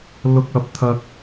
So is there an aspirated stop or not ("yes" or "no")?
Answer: yes